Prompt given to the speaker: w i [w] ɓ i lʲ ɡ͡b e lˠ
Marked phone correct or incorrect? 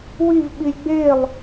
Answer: incorrect